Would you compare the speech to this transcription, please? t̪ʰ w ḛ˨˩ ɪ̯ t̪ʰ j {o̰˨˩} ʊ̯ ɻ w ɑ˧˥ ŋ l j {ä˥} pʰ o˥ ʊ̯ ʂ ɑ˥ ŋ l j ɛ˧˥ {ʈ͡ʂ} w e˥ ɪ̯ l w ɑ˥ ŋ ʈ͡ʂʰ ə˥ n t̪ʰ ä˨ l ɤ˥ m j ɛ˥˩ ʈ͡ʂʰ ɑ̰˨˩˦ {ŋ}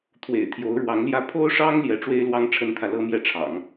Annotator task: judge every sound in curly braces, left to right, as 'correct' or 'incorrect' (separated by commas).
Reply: incorrect, incorrect, correct, correct